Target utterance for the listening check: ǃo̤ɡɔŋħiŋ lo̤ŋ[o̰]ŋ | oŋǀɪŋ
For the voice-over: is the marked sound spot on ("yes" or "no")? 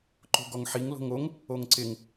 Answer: no